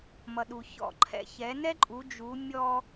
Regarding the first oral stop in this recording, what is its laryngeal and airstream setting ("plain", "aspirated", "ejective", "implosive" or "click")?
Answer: implosive